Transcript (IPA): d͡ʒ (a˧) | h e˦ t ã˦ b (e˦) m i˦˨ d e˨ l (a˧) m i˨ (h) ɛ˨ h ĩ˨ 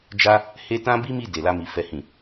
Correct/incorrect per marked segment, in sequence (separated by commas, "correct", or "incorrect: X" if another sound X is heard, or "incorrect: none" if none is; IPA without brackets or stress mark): correct, incorrect: i˦, correct, incorrect: f